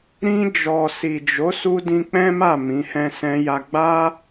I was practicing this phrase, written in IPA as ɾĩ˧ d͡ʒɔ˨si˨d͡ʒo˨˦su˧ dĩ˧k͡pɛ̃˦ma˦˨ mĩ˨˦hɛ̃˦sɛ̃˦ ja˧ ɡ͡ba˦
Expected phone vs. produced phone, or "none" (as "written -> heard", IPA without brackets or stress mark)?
none